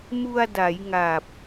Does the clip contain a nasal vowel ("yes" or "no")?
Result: no